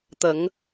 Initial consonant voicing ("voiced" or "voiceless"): voiceless